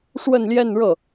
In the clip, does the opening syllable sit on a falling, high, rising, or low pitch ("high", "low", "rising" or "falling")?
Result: falling